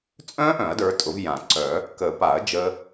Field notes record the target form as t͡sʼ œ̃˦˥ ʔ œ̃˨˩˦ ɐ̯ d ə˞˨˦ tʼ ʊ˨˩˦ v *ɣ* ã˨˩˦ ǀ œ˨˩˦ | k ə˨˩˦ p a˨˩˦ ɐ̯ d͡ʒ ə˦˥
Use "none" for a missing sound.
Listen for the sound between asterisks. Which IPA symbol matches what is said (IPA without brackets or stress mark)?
j